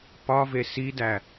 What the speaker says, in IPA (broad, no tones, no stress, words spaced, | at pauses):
pɒve sidæ